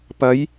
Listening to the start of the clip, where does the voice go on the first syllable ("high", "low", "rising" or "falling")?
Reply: rising